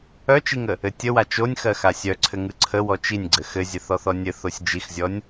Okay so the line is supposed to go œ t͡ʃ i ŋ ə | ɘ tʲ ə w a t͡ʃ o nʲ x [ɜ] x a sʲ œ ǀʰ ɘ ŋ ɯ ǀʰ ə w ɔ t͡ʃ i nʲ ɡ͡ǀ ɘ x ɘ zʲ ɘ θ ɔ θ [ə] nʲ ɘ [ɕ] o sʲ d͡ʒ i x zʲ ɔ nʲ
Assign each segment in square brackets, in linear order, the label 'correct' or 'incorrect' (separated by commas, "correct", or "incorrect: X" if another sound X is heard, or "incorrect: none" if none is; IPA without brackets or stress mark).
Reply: correct, incorrect: ɔ, incorrect: θ